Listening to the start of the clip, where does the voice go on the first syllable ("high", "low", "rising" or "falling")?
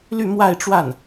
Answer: falling